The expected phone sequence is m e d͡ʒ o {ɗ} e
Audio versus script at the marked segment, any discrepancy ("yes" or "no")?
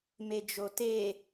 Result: yes